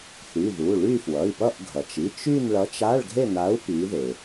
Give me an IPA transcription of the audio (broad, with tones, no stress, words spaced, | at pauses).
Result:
θy˩˧˩ðu˩˧˩ ɭy˥˧fwʌ˩˧˩i̯pʌ˥˧ʔɡʱʌ˩t͡ʃ i˩˧˩t͡ʃ y˥˧nɭʌ˨˥t͡ʃ a˧˥˧ɭɡʱe˥˧na˨˥u̯ pi˨˥ðe˩